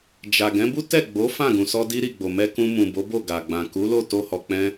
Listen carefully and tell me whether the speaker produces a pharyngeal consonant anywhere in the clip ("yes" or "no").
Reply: no